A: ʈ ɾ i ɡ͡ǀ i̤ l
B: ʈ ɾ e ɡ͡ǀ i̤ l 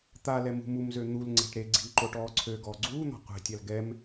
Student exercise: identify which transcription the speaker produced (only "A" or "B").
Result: B